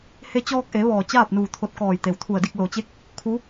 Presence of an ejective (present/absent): absent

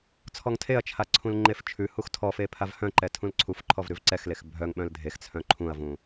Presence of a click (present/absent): present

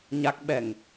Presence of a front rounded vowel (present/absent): absent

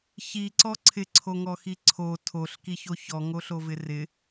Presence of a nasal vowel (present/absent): absent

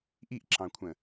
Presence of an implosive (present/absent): absent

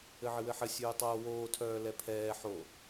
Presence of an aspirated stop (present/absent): present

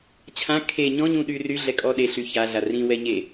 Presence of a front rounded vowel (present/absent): present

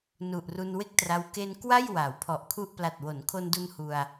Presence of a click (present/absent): absent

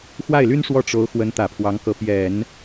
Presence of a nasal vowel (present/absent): absent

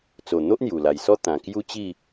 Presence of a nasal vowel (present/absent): present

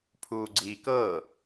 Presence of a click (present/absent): present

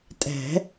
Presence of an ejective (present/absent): present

